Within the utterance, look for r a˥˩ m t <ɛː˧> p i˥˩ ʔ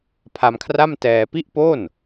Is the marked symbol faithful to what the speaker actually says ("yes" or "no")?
yes